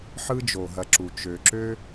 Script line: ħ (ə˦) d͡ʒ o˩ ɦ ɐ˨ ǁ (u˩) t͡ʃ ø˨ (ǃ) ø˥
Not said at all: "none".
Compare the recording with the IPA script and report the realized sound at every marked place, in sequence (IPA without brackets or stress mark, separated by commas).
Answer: ɯ˦, u˩, ǁ